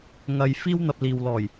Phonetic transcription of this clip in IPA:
ŋɐ˨jfiː˥wn̪ɐ˧p̚ liː˨wlɔː˨˩j

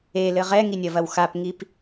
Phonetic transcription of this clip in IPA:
elɘ ʁɛŋinʲɐvɐw xapŋip

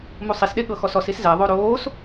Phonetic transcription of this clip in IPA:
musˤisɗe ɠɤxɔsɔsis zɛðˤo ɾoːs

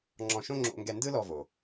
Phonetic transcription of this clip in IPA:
ŋ͡ǁɔ̃˧ʃõ˥ ŋ͡ǁo̰˧ŋɡɛ˧ ndɯ˥lɔ˧vo˩

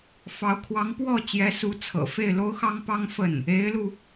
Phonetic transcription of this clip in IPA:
fɑ˧˥ʊ̯ kʰwɑ˧˥ŋpwɔ˥˩ t͡ɕjɛ˧˥su˧˥ t͡sʰɤ̰˨˩ fe˥˩ɪ̯lo˥ʊ̯xɑ˥ŋpɑ˥ŋ fə˥˩n | e˧˥ɪ̯lu˧

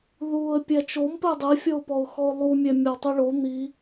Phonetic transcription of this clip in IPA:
ðuə̯ pʲæt͡ʃompe dˤifʲɔʊ̯pɔʊ̯xɔʊ̯ lˠumʲæmʲɔ tˤiɭo n̪i

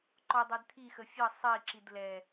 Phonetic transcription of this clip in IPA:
ǃɔdˤɛd t̪ʰixə fʲʌ sˤiǁid lɛ

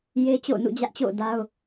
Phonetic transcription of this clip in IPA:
je˦ t͡ɕo̰˦˨ʊ̯nṵ˦˨d͡ʑä˦ʔt͡ɕo̰˦˨ʊ̯ da˦ʊ̯

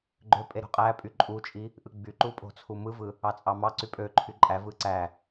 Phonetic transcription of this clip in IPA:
ɡ͡ǃøpʼe ɾo̤qʼæpʼy ǃʼut͡ʃʼi | ʔɯɡ͡byǃu pʼo̤t͡sʰumɯvɯ | ɑt͡sʼɑmɑǀy pʼøǃʰy ǃʼævɯ ǀæ

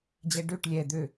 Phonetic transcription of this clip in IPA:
d͡ʑɛɖøʈ lʲɛ d̪ø

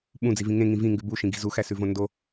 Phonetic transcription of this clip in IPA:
ɓũd͡zivĩ ŋẽŋĩ vĩŋɡʉ buʃĩɡi̤ zuxæsʉvõ ndo

